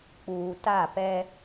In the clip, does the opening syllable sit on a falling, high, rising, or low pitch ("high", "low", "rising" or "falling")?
low